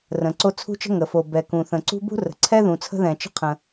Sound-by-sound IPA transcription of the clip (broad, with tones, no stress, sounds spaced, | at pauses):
r ə̃˩ ǀ o˥ t͡sʰ ṳ˥ t͡ʃ ə̤˥ ŋ ə˩ f o˩ b ɛ˩ k ũ˩ θ ə̃˩ ǀ ṳ˥ b ṳ˥ r ə̤˩ ǀʰ ɛ˥ ð ũ˩ t͡sʰ ə̤˥ ð ɛ̃˩ t͡ʃ ə̤˥ qʰ ə̃˩